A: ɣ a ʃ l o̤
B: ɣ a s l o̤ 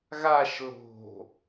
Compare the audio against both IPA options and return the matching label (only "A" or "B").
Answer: A